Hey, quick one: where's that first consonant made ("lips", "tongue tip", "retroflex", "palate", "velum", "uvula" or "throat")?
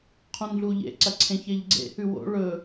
uvula